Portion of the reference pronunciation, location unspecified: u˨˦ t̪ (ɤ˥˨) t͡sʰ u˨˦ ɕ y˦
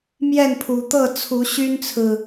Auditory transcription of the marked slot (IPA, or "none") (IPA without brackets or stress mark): ɤ˥˨